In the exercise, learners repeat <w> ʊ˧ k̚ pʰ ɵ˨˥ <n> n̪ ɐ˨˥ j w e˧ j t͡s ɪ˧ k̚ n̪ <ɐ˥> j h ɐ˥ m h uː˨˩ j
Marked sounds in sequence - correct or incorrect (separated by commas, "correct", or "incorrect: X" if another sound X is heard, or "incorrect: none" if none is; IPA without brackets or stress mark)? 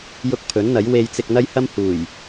incorrect: j, correct, correct